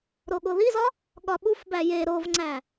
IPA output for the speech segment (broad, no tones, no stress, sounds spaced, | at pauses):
ɾ o ɠ o ð i z ɒ | ɠ ɒ ɓ u f b æ j e ɾ o v ŋ͡ǀ æ